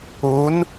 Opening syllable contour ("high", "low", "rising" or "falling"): rising